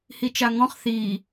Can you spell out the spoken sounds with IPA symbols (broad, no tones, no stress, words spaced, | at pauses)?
hit͡ʃaŋɔ̃χ θiː